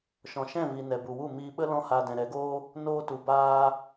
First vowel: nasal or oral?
nasal